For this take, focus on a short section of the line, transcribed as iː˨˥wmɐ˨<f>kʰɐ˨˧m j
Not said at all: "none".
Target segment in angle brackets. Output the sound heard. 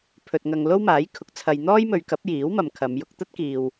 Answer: m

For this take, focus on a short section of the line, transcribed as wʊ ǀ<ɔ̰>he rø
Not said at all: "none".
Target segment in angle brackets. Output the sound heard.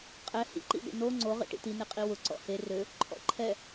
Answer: ɔ̰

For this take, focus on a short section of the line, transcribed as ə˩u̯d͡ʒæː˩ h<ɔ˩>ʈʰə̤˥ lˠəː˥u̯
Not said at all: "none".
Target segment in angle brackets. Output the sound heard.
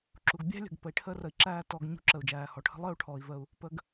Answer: ɔ˩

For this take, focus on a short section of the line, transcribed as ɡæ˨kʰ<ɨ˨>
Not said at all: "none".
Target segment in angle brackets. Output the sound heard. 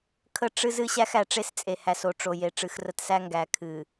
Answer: ɨ˨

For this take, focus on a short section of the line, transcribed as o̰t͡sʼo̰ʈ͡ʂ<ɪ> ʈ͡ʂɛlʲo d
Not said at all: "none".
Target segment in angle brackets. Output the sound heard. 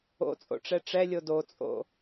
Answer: ɛ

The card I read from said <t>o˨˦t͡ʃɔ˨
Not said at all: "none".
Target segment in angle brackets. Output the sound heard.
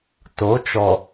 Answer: t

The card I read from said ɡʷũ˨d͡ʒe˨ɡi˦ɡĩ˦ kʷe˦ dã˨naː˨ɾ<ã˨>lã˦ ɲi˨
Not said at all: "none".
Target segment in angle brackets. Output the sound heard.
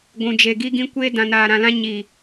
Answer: ã˨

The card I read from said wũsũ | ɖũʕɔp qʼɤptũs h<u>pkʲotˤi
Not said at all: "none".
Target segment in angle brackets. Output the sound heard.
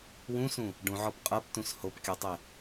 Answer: o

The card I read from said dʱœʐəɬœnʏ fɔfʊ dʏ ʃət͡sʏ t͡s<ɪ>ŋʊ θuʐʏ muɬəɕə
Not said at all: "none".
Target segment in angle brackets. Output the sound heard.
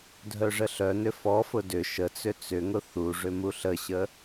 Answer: ʏ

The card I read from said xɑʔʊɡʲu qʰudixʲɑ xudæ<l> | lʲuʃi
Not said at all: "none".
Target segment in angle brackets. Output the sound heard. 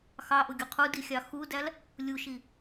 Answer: l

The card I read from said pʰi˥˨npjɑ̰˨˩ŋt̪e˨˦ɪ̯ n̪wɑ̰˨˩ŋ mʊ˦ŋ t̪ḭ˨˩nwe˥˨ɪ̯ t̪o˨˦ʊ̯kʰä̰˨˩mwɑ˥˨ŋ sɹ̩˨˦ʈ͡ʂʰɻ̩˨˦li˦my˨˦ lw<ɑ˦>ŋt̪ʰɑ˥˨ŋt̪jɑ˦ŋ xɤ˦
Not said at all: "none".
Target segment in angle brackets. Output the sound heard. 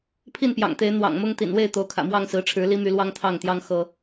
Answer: ɑ˦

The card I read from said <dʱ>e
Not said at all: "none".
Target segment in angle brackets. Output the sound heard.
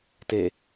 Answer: t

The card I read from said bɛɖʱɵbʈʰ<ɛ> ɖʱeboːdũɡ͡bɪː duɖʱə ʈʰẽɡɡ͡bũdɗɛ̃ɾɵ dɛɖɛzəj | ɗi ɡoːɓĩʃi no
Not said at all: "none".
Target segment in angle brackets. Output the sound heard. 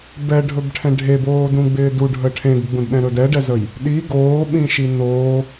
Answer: ɛ̃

